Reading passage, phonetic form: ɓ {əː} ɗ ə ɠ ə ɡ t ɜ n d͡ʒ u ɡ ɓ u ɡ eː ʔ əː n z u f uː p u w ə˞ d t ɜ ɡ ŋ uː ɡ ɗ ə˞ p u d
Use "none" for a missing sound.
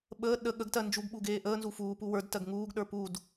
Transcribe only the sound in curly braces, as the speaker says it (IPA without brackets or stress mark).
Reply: əː